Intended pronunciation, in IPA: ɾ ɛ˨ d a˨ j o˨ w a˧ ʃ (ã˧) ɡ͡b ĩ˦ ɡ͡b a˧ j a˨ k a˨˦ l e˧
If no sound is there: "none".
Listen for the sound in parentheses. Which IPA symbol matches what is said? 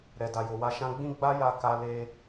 ã˧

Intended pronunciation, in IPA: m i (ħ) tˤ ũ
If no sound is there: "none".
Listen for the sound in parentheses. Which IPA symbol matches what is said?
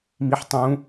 ħ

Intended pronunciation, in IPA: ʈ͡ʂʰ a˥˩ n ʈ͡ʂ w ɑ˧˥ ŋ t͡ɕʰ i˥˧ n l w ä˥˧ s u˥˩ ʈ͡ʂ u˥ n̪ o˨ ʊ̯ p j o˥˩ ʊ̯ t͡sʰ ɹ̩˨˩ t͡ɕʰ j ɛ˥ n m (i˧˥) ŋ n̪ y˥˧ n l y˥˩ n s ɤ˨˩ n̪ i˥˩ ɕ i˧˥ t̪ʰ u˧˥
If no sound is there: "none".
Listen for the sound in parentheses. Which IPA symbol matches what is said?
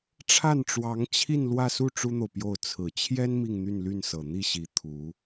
i˥˧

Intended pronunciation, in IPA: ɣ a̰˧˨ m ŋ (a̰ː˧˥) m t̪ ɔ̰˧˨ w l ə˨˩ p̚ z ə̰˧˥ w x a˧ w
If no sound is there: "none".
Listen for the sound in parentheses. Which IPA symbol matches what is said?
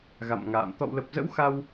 a̰ː˧˨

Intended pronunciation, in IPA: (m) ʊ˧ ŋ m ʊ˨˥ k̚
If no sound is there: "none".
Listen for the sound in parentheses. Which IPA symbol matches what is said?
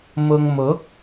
m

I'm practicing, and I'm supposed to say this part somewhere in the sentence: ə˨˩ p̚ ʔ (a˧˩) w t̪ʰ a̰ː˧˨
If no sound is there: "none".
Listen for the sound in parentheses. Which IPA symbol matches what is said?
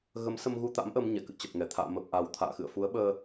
a˨˩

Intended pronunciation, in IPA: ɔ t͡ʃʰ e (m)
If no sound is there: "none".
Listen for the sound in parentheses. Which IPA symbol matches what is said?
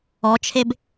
b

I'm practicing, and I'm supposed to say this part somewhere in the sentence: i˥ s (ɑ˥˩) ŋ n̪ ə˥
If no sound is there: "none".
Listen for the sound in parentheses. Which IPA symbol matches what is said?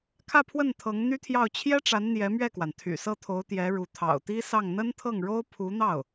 ɑ˥˩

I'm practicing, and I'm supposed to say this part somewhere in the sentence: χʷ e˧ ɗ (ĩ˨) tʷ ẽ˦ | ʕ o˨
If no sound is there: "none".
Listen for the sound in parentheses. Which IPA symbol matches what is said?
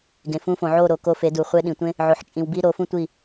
ĩ˨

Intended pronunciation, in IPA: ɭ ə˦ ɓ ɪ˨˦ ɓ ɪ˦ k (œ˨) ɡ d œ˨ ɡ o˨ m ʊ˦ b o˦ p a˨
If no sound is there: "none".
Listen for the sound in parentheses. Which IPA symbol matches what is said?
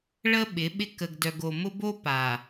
ə˨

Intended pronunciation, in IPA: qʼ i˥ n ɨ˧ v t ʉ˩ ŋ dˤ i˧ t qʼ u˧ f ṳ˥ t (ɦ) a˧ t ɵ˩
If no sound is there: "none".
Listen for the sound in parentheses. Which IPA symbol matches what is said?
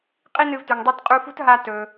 ɦ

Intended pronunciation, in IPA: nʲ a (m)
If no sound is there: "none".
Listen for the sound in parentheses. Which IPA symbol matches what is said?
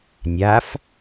f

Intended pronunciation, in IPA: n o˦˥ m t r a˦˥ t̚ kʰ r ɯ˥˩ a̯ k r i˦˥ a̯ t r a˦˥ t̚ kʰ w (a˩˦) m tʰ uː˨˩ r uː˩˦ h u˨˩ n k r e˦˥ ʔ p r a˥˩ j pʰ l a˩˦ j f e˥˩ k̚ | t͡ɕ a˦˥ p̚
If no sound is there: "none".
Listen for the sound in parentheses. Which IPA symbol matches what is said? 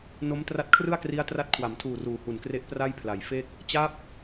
a˩˦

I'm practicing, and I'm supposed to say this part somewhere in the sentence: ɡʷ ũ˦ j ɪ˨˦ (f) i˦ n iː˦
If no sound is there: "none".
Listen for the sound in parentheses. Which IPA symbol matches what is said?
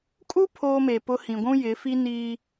f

